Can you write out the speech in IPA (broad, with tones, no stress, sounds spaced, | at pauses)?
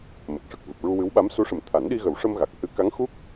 m ə˨˩ k̚ ʂ ə˨˩ k̚ v ɨ˨˩ p̚ ɹ u˧ w ɨ˧˥ w ɓ a˧˥ m s u˧˥ ʂ ə˨˩ m t̪ʰ a˨˩˦ n ɗ i˧ ɣ ə˨˩˦ w ʂ ə˧ m ɣ a˨˩ k̚ h ɨ˧˥ k a˧˥ ŋ x u˦˥ k̚